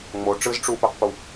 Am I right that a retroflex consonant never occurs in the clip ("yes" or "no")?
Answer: no